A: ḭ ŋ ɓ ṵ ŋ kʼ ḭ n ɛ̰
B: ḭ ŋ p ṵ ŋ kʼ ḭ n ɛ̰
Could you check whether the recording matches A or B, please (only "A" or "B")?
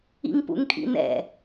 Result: B